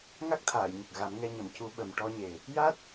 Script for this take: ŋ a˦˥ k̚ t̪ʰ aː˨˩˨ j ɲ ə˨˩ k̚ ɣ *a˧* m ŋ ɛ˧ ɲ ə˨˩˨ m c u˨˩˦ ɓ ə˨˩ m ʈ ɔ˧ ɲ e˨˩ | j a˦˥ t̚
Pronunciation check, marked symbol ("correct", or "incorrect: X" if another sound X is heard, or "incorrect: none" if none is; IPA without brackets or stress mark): incorrect: a˨˩˦